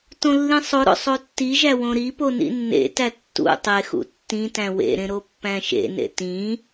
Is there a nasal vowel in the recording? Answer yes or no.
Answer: yes